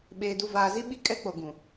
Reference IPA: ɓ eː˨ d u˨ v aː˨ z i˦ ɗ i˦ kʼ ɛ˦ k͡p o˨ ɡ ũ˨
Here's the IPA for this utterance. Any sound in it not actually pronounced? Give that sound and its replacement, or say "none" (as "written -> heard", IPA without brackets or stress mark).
ɗ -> ɓ